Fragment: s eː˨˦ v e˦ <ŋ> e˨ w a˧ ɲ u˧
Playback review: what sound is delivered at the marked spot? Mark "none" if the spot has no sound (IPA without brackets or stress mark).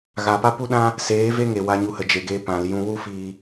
ŋ